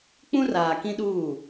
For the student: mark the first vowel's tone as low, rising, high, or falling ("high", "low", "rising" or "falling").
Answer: high